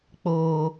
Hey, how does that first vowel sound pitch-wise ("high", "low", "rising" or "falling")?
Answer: low